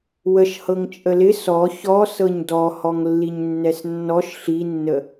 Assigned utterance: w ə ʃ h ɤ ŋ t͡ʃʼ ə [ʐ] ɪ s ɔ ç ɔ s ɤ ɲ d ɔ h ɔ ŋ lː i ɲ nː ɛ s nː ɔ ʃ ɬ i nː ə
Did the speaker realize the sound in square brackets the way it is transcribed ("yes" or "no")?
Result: no